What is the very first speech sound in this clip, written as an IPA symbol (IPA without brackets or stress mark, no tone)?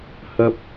h